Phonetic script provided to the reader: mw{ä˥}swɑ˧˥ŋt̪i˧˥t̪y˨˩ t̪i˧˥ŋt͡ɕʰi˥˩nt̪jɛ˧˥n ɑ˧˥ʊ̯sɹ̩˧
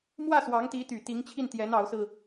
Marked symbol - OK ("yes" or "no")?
no